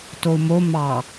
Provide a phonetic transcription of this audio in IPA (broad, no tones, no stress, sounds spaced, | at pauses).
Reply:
t o u̯ m o m ɑ